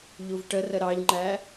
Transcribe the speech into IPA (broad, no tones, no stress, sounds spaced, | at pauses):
ʎ u v ʈ ə r ə ɾ ɑ ʎ ŋ͡ǃ æ